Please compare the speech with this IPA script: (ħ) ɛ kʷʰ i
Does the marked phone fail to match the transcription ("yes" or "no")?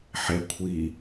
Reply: no